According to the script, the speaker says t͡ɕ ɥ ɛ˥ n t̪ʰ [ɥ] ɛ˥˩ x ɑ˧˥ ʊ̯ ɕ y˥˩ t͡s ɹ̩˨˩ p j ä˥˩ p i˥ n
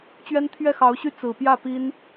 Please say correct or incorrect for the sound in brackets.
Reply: correct